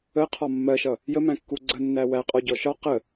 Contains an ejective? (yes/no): yes